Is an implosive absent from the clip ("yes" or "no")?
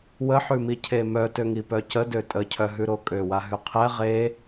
yes